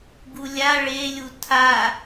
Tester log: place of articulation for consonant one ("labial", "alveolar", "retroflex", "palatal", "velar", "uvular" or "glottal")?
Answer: velar